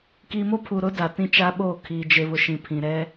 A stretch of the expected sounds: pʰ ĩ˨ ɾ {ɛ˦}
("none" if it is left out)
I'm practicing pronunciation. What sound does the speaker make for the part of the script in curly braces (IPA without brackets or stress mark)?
ɛ˦